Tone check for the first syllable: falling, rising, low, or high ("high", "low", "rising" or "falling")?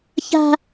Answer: high